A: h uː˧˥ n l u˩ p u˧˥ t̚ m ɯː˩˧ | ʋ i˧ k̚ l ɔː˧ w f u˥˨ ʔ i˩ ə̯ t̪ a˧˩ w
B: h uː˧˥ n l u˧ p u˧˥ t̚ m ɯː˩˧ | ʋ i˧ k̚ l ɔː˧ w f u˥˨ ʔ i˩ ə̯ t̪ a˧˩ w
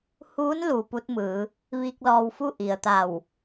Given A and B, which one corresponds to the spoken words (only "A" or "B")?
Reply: A